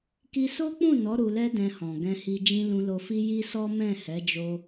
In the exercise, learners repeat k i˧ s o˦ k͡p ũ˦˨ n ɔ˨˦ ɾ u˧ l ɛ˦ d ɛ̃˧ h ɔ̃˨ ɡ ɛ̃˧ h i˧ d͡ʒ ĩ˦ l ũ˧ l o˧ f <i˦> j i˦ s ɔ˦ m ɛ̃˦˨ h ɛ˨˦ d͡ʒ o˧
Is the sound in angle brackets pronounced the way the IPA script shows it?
yes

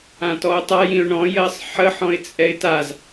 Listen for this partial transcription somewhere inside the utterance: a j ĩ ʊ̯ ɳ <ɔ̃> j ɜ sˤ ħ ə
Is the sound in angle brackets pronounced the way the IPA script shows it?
yes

